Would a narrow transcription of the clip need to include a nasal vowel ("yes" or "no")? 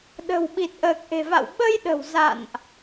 no